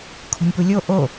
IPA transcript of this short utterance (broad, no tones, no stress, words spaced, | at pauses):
kʰo̤nʲpulʲo ʔo